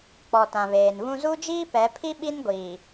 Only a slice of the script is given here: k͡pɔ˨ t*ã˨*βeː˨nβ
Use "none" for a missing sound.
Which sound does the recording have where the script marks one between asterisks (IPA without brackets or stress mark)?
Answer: ã˨